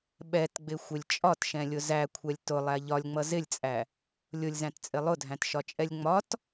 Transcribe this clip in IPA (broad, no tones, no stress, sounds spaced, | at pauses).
ɓ ɛ t ɡ͡b ɪ xʷ ɪ lʲ t͡ʃʼ ɒ t ʃ ɛ̃ lʲ ʊ z æ kʷʰ ɛ lʲ t ʊ lˠ æ ʎ ɒ lʲ ŋ͡m ʌ z ɪ lʲ t͡sʼ æ | lʲ ʊ lʲ z æ̃ t t͡sʼ ɪ lˠ ʊ dʱ æ̃ t ʃ ɒ t͡ʃʼ ɛ lʲ ŋ͡m ɒ t